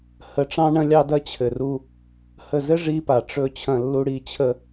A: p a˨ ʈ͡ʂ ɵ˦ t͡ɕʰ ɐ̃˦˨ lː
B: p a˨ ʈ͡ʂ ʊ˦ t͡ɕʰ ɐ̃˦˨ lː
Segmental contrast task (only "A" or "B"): A